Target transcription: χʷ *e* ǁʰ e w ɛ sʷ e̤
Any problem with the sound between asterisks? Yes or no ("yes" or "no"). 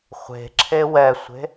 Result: yes